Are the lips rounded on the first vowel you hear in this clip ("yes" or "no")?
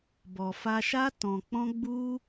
yes